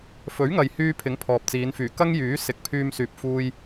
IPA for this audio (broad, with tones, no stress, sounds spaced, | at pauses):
f ɵ˨˥ ɥ ŋ ɐ˨ j h yː˧ pʰ ɪ˨˥ ŋ pʰ ɔː˨ p̚ t͡s iː˨˧ n f yː˨˩ k ɐ˥ ŋ j yː˨˥ s ɪ˨˥ k̚ pʰ yː˧ m s yː˨ p̚ f uː˧ j